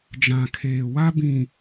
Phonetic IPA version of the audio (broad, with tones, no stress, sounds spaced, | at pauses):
d͡ʒ ã˨ kʰ eː˨ w a˦ b ĩ˨